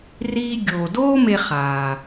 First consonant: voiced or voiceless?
voiced